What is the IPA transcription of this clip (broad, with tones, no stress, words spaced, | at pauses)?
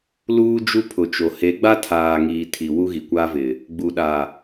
luː˦d͡ʒu˦pʰʊ˨t͡ʃo˨ he˨˦ɡ͡ba˦tʰaː˨ŋiː˨ tʰi˨ wu˦ɣi˨kʷaː˦vɪ˨ | ɡ͡bu˨ɗa˨